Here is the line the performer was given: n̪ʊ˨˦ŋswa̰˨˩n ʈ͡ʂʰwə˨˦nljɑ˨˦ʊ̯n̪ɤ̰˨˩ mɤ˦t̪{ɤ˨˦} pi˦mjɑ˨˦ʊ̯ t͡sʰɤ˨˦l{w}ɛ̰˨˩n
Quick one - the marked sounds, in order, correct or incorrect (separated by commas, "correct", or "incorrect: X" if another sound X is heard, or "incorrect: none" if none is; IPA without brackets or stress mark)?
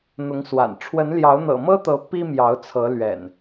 correct, incorrect: ɥ